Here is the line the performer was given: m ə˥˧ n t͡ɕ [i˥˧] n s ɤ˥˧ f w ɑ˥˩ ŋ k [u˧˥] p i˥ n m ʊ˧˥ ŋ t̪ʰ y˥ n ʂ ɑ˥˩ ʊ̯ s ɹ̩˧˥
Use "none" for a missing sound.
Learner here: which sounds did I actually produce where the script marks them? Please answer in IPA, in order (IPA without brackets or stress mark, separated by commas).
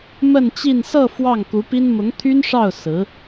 i˥˧, u˧˥